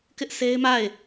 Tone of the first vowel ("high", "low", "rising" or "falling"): high